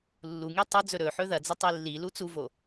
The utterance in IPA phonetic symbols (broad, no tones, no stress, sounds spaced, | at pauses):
lː u ŋ i tˤ o d͡z ɵ ɾ ɵ ħ ɵ ð ɐ d͡z ɐ tˤ i lː i l u t͡s u v o